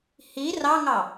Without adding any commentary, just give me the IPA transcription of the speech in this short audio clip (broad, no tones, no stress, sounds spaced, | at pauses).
h i r ɑ ŋ ɑ